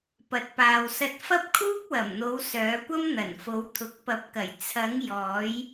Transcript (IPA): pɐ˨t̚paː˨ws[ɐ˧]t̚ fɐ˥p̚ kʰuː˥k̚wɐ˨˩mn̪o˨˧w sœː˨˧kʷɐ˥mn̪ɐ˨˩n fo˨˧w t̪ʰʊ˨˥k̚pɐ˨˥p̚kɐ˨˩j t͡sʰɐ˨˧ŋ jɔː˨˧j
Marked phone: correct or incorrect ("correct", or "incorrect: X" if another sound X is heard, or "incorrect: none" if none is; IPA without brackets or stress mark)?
correct